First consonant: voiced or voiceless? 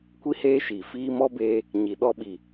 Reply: voiceless